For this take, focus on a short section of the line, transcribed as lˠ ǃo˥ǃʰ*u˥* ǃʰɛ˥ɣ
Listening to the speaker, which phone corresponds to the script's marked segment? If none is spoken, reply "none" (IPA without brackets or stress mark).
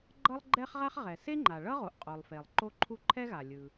u˥